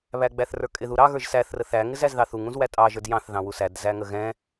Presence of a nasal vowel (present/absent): present